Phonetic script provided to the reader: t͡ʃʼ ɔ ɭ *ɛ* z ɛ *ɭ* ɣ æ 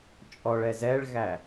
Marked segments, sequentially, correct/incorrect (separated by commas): correct, correct